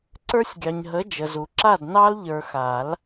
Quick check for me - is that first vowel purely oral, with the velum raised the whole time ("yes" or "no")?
yes